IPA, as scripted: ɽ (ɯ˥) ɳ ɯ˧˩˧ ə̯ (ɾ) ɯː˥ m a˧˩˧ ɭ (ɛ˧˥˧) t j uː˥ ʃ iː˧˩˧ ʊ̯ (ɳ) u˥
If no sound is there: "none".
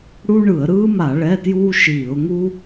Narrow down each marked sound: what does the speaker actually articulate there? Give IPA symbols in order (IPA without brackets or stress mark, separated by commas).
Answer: u˥, ɾ, ɛ˧˥˧, ŋ